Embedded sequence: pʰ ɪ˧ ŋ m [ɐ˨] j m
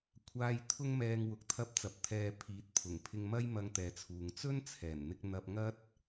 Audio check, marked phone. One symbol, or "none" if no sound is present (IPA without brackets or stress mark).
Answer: ɐ˥